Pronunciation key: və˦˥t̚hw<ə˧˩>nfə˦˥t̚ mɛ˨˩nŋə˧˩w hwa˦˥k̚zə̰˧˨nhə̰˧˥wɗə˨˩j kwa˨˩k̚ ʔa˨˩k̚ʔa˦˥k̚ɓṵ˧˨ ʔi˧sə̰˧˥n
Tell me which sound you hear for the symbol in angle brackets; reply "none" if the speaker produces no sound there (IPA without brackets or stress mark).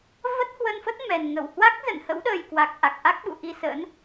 ə˧